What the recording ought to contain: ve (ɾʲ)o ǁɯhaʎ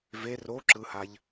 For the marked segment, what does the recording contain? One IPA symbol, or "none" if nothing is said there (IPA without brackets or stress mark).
r